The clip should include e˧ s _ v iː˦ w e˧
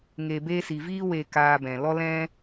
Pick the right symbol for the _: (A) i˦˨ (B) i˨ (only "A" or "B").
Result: B